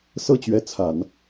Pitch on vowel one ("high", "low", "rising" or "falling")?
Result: falling